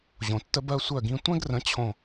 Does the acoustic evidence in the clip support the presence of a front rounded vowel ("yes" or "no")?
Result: yes